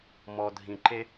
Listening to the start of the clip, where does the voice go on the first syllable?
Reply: low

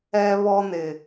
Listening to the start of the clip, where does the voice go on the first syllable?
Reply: high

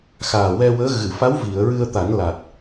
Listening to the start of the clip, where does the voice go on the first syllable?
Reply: low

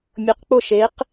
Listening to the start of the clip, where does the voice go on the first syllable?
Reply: rising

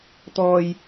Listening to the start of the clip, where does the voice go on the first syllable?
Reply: low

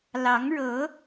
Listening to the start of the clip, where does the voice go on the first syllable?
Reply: rising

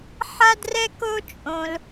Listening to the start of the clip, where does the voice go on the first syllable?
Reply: high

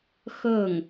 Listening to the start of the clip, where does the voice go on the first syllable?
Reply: falling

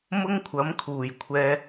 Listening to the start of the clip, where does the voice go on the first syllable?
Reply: high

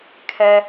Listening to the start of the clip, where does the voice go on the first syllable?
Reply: high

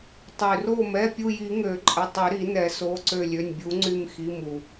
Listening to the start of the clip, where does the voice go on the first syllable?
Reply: low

